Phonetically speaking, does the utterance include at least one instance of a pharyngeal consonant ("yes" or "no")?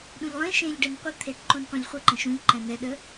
no